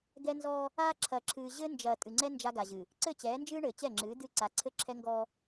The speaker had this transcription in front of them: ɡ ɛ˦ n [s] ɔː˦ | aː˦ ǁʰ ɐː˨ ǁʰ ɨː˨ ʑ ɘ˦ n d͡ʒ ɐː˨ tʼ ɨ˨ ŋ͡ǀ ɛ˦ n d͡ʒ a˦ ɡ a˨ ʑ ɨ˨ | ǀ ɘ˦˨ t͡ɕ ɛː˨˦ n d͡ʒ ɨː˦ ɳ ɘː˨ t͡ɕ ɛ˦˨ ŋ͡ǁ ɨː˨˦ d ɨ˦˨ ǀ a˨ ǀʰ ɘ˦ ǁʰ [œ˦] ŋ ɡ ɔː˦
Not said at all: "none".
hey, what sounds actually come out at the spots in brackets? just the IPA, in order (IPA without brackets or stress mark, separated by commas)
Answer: z, ɛ˦